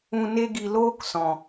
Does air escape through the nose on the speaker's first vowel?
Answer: yes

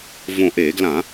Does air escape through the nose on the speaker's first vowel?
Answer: yes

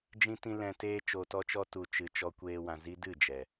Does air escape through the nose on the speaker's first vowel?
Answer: yes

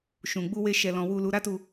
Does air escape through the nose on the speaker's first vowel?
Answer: yes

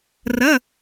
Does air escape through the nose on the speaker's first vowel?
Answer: no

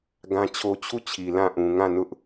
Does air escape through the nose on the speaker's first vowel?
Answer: yes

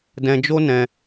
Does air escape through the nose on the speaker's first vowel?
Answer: yes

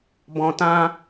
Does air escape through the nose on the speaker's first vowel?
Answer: yes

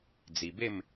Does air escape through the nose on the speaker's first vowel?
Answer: no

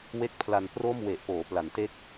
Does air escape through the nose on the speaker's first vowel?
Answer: no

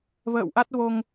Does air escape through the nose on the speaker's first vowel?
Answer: no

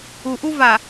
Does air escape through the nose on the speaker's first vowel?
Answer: no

